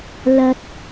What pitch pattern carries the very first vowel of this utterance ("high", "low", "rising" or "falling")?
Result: high